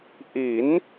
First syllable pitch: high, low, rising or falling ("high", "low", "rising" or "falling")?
rising